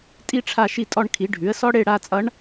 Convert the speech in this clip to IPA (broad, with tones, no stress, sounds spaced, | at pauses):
tʼ i˥ ʈ͡ʂʰ a˥˧ ʃ i˥˩ tʼ ɔ˥˧ ɳ kʰ i˩˥ ɖʱ ʉ˩˥ ə̯ s ɔ˥ ɽ e˥˧ ɽ a˥˧ t͡sʼ ʌ˧˥ ɳ